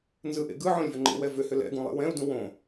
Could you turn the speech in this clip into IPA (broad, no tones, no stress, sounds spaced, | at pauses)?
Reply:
n z ɯ ʔ ḛ ɡ ɯ ʕ õ lʲ v ʏ ŋ͡ǃ ḛ w ɛ v ʏ h ʏ l ɛ̰ ɡ ũ lˠ ḛ w ɛ̃ u̯ d ũ w õ